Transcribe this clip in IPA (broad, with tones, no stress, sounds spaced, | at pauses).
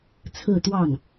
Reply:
t͡sʰ ɹ̩˥˧ t̪ w ɑ˥˩ ŋ